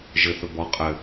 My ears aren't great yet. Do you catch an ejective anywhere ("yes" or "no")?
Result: yes